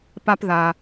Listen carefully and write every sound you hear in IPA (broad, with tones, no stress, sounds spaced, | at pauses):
p a˥ p ð a˨